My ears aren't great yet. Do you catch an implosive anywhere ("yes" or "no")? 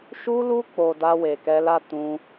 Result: no